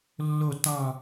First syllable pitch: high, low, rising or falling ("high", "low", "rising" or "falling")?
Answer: falling